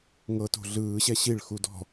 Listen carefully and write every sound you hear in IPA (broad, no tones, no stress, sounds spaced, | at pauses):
ŋ ɤ t o̤ ɮ ɯː ɕ ɛ ɕ i ɭ x u d ɔ̤